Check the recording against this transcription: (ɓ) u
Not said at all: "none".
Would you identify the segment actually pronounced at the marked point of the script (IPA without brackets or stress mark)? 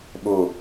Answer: ɓ